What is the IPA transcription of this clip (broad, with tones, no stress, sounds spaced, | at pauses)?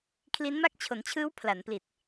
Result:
kʰ l i˦˥ n m a˥˩ k̚ t͡ɕʰ o˩˦ n t͡ɕʰ ɯː˦˥ w pʰ l a˩˦ n p l i˨˩ t̚